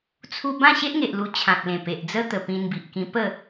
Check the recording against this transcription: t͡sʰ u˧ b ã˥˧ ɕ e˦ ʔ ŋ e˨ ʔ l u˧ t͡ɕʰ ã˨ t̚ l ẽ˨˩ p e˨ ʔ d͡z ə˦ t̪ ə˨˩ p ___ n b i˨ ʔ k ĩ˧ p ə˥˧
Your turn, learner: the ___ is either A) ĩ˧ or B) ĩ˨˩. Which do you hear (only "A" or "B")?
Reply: A